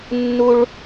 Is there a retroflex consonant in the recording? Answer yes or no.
yes